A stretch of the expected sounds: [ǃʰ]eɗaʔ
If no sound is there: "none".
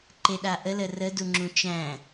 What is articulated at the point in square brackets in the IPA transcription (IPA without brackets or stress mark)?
ǃ